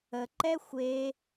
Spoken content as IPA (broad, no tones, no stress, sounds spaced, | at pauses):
ə ǃ ɛ xʷ e